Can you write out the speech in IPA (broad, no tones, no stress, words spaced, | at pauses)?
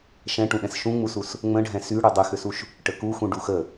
ʃɛ̃ʈũɗɛ̃s ʃũŋ͡musus | ŋ͡mə̃ɖʱɛ̃ sy ɽydˤyxʏsuʃ | ʈəkuxũ ɖuxə